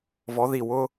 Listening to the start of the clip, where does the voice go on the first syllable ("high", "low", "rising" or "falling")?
rising